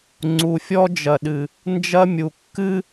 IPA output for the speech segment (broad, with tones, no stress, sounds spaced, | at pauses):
ŋ͡ǀ u˨ fʲ ɔ˦ d͡ʒ ɐ˨ ɗ ɨ˨ | n d͡ʒ ɐ˦ mʲ u˨ kː ɨ˦